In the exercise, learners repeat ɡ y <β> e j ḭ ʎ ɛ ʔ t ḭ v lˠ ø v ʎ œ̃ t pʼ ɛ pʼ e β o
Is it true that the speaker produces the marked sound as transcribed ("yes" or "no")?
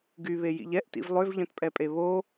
yes